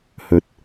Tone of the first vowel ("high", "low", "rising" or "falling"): rising